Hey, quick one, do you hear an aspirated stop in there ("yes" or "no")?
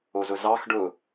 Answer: no